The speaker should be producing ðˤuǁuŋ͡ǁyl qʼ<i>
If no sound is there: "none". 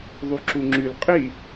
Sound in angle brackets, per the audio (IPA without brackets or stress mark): i